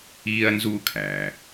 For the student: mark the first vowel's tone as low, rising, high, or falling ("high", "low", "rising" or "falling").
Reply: high